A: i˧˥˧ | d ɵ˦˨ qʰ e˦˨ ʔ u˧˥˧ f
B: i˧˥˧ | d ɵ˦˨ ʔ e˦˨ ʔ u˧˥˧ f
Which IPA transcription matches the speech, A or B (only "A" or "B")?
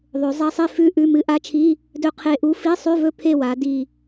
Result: A